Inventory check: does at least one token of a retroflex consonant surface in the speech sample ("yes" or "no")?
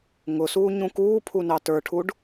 yes